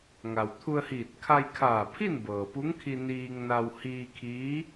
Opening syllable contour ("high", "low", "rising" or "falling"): low